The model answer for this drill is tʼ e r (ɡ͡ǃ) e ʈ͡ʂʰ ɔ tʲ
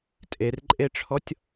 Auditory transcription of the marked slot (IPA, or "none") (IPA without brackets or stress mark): ǃʼ